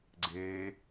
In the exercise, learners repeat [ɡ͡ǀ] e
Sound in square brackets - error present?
no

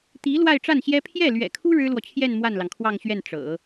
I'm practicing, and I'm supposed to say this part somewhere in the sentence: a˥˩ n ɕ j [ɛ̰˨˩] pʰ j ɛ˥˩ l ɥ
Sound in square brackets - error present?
yes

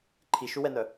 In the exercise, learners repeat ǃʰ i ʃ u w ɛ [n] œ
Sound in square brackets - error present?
no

